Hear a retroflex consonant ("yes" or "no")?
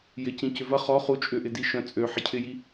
no